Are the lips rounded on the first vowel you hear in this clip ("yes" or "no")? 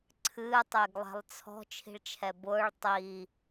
no